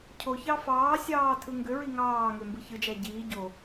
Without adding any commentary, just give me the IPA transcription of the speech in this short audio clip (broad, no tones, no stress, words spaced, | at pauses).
cʰoçɑ fɑːsʲɑː tʰɯŋɡøɹi ŋɑːŋø mbɯçɯd͡ʒæ ɟiː ɟo